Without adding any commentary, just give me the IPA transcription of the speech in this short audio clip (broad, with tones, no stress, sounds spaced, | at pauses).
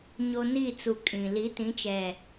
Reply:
ɲ o˦ n i˦˨ t͡s u˨ kʼ ĩ˨ l i˨˦ t ĩ˨˦ t͡ʃ ɛ˨